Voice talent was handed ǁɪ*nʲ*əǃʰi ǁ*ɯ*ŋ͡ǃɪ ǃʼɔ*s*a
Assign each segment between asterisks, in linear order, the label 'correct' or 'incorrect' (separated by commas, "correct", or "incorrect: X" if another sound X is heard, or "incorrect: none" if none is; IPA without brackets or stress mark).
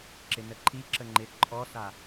incorrect: n, incorrect: ə, correct